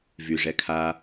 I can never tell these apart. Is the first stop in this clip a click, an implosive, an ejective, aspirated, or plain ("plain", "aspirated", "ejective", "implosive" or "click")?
aspirated